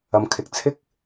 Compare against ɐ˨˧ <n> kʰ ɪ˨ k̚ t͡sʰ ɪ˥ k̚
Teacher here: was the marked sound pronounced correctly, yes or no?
no